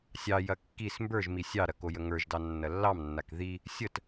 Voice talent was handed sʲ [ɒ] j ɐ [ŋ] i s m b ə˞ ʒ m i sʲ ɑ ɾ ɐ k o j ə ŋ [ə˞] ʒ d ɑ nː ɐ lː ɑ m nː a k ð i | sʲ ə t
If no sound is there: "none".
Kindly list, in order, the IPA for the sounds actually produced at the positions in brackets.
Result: ɑ, kː, ə˞

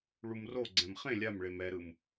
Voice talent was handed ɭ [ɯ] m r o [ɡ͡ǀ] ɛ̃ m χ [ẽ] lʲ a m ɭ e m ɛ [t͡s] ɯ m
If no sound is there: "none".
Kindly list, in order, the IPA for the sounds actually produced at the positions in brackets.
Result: u, ɡ͡ǀ, ẽ, ɾ

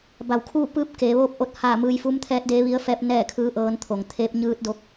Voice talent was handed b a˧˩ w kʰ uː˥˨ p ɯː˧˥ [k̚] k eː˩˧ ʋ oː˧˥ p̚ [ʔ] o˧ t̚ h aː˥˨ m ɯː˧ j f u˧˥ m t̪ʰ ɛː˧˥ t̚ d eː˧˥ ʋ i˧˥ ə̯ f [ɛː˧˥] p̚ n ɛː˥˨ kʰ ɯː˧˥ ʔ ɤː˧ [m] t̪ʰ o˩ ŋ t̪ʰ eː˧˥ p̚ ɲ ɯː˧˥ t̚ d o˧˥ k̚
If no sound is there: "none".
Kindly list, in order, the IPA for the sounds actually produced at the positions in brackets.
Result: p̚, ʔ, ɛː˧˥, n

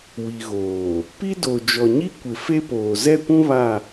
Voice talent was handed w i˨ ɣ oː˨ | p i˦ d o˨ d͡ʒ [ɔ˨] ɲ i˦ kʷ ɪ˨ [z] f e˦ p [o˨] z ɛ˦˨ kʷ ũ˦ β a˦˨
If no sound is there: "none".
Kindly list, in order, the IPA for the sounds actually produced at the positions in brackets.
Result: ɔ˨, none, oː˨

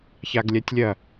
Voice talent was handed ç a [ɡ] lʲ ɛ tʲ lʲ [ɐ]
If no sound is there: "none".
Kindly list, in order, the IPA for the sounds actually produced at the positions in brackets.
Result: ɡ, ɐ

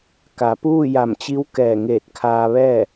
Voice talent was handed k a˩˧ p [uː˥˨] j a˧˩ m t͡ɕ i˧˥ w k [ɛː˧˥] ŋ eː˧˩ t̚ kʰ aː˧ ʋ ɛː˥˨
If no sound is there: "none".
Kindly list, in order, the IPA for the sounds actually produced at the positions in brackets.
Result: uː˥˨, ɛː˧˩

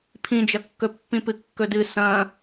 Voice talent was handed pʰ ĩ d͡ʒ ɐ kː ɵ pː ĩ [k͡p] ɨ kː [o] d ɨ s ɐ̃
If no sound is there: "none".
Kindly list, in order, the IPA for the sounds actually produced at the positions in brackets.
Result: p, ɵ

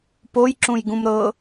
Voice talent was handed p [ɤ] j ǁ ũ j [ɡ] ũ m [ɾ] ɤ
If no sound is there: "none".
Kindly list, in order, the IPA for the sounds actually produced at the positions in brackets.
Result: o, ɡ, ɾ

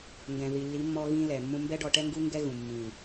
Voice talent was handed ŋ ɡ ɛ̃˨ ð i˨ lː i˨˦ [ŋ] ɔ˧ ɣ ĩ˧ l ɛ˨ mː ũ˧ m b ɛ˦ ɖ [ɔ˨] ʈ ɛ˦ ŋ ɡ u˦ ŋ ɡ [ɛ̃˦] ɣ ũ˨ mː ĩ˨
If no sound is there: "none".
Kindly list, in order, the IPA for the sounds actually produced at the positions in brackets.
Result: mː, ɔ˧, ɛ˦

